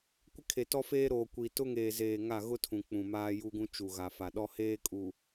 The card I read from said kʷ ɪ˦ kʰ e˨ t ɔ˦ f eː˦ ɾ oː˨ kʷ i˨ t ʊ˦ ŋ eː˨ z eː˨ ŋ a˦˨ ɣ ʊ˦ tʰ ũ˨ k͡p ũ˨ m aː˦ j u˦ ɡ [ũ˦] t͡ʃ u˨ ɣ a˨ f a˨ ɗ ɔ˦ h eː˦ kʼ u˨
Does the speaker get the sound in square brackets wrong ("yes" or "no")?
no